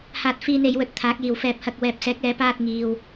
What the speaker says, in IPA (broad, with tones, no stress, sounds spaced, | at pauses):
h aː˧ t̚ f iː˧ n e˨˧ j w ɵ˧ t̚ t̪ʰ aː˨˥ k̚ j iː˨ w f ɛː˧ p̚ h ɐ˧ k̚ w ɛː˨ p̚ s ɛː˨˥ k̚ ɛː˨˧ p aː˧ t̚ ŋ iː˨ w